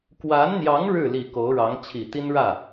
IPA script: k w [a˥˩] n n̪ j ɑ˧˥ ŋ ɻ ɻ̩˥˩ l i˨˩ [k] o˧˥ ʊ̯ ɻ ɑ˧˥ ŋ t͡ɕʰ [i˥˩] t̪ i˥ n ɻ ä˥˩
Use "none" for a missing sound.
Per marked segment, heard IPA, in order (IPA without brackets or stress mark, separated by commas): a˧˥, k, i˨˩